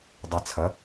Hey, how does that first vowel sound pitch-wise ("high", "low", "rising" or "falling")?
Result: low